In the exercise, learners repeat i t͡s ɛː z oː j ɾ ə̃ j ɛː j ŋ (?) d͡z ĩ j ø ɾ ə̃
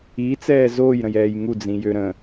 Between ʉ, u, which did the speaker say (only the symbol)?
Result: u